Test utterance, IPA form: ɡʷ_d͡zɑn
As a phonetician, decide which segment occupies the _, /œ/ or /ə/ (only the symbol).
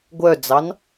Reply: œ